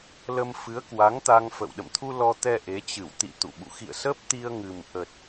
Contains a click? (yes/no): no